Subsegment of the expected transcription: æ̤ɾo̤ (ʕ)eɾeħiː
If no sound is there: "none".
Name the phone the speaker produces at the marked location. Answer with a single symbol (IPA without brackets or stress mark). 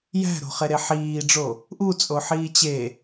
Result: χ